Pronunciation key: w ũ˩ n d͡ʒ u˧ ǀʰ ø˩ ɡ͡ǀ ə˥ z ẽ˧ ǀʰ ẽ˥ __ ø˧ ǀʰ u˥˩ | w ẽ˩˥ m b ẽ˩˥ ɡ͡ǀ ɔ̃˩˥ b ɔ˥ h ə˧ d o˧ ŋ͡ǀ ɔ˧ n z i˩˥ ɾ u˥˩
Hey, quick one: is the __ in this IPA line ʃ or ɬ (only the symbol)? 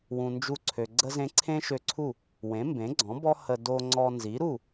ʃ